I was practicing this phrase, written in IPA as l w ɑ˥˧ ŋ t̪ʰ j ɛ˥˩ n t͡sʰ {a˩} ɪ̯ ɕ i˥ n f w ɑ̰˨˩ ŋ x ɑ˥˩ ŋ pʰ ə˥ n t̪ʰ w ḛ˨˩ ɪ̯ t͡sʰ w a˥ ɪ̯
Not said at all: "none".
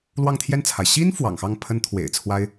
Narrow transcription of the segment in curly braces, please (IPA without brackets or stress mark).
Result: a˩